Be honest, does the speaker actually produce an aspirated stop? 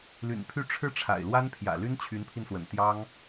yes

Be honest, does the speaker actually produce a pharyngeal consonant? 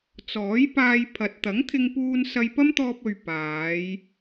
no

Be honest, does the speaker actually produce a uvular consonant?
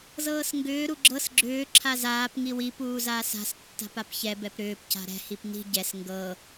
no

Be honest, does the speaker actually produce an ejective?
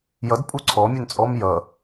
yes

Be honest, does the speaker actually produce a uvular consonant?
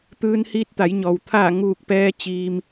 no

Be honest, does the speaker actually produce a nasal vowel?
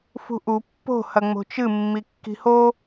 no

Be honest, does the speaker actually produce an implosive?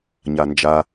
no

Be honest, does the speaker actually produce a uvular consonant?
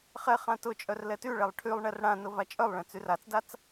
yes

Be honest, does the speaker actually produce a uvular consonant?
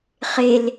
yes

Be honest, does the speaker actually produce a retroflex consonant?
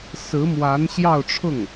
yes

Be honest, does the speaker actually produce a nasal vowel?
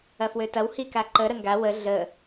no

